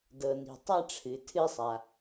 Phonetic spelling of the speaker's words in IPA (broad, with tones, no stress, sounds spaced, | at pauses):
d ɤ˩ n i̤˩ tˤ a˧ ʈ͡ʂʰ ɨ˩ tʰ ɨ˧ sˤ a˩